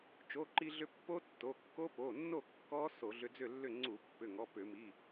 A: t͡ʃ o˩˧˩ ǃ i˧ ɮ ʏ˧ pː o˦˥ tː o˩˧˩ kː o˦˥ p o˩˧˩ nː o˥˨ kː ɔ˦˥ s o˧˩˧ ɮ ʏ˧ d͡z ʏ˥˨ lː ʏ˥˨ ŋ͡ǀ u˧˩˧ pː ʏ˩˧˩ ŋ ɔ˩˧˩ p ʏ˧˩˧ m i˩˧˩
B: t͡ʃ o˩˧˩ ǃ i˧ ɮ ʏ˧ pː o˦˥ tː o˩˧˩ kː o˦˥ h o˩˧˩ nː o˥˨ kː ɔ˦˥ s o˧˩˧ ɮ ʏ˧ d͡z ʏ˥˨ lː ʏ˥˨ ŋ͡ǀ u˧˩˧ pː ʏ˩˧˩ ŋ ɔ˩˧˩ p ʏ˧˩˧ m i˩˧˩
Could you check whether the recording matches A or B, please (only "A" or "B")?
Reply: A